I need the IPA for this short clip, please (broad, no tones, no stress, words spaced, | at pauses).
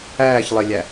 æːçlˠelʲæ